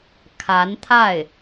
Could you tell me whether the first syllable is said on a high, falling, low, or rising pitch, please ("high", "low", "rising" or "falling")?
rising